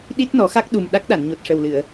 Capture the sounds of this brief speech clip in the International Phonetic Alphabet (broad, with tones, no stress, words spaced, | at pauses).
ɗi˦˥t̚nɔ˨˩˦xa˦˥k̚ ɗu˨˩m ɗa˦˥k̚ɗa˨˩˨nɲo˨˩t̚ ʂə˨˩wlɨ˨˩˨ə̯